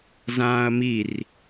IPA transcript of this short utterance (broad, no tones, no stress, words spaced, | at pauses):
zãːɐ̯mir